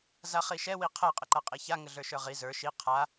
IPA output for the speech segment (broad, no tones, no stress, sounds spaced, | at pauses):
z a χ i ʃ ɛ w i qʰ ɛ qʼ ə ǃ a qʼ i ç a ŋ ə ɮ ə˞ ʃ ə˞ ʁ i z ə˞ ʃ i qʰ a